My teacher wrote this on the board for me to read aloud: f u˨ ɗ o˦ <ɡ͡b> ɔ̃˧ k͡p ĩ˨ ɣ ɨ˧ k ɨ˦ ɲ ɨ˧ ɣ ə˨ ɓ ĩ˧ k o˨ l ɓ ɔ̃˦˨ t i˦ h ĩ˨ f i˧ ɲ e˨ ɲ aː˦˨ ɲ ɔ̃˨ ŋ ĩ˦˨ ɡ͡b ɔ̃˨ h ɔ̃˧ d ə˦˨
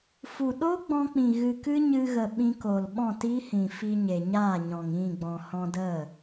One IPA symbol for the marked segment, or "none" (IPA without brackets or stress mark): ɡ͡b